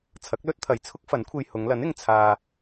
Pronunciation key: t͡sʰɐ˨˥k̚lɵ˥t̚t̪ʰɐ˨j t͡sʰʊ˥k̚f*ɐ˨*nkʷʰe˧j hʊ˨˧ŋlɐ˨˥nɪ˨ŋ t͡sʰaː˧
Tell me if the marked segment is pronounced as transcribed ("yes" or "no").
no